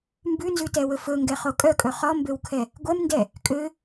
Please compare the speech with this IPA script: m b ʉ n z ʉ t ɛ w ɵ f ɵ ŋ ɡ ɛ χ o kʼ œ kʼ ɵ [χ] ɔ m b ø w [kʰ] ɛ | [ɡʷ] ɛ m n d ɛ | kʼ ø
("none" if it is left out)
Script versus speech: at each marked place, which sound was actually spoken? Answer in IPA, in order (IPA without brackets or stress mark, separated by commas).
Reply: χ, kʰ, ɡʷ